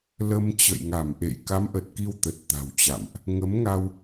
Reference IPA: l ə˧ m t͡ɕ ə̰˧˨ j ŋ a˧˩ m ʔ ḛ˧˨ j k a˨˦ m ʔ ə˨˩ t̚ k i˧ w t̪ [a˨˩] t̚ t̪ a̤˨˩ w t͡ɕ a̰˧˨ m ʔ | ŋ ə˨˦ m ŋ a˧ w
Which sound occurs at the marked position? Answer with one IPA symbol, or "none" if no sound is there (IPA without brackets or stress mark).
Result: ə˨˩